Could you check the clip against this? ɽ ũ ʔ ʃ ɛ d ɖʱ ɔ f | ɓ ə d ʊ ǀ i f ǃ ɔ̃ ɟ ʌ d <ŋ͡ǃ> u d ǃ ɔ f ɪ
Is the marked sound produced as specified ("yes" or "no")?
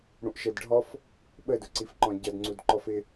no